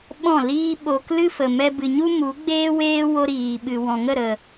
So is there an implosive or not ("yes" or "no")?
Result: yes